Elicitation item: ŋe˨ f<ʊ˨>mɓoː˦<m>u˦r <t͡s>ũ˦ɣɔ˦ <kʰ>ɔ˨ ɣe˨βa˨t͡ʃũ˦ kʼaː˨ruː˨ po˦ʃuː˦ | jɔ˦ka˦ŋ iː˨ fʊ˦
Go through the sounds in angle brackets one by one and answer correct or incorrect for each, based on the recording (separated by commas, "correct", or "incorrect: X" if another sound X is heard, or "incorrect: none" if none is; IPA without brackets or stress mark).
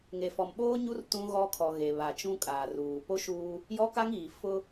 incorrect: ɔ˨, incorrect: ɲ, incorrect: t, correct